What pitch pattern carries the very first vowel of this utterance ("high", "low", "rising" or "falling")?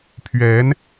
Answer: rising